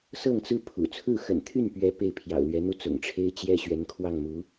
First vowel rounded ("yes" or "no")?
no